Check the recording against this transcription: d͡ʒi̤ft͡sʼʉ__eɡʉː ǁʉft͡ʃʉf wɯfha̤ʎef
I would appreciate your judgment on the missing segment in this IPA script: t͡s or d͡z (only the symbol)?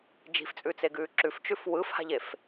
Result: t͡s